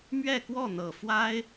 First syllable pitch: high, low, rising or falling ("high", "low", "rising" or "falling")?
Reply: falling